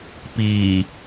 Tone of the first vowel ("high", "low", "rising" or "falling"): low